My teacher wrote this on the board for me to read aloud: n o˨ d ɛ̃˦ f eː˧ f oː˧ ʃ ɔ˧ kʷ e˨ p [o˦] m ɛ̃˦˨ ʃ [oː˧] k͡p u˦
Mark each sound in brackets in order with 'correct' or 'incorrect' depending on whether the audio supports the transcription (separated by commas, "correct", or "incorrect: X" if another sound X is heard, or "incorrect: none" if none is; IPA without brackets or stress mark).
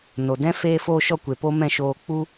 correct, correct